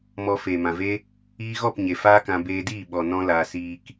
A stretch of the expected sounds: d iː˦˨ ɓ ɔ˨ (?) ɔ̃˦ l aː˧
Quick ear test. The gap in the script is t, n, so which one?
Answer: n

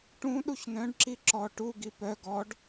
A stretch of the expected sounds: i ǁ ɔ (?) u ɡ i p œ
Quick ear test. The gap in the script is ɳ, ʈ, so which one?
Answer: ʈ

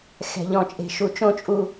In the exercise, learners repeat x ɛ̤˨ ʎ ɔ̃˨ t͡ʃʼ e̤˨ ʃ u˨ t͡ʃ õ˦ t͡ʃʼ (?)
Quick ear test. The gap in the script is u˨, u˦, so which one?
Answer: u˦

